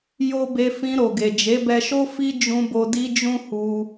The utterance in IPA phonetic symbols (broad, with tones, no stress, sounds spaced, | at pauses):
j o˦ b e˧ f ĩ˧ ɾ o˨ ɡ e˨ d͡ʒ e˨˦ b ɛ˧ ʃ o˦ f i˦ d͡ʒ ũ˧ b o˧ d i˧ d͡ʒ ũ˦ h u˧